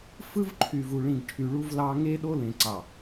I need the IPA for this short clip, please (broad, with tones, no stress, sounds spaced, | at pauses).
f ɯ˦ v ǃʰ y˨ v u˨ ɭ ĩ˨ ɡ ʈʰ y˨ ɭ u˦ v l ɑ˦ ŋ e˦ ɗ o˦ l ẽ˨ ǀ ɑ˨